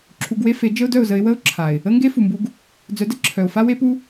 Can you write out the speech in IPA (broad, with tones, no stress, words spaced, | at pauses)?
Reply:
ǁʰu˧ɡwe˦ fe˨˦ d͡ʒə˦ʊ̯dœ˦˨ʊ̯zə˧ɪ̯ wə˦ʊ̯ ǁʰa˨ɪ̯ | ə˦ŋɡe˦ fu˨mbu˧ɡ | d͡zœ˨˦də˧ ǁʰœ˨ʊ̯ fa˦we˦pu˦